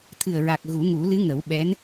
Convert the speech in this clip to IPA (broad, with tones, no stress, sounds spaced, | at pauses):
t̪ʰ ɨ˨˩ ə̯ ɹ a˨˩ k̚ ɣ u˨˩˦ ŋ u˨˩˦ l ɨ˧˥ ŋ ə˨˩˦ w ɓ ɛ˧˥ n